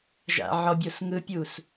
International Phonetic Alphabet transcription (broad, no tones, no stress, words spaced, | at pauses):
ʒa̰ʕɔbʲos ŋɯpʲus